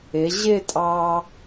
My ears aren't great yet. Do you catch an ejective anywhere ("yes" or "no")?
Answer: yes